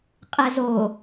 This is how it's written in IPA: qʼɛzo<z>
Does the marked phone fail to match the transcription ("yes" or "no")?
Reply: yes